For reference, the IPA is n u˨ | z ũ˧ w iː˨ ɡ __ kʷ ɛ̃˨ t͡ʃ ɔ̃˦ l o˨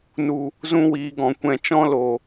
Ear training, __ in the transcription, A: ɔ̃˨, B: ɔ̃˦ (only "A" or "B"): A